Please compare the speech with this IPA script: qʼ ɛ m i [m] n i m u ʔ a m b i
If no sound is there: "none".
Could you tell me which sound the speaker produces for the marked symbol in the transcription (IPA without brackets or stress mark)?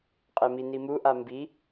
none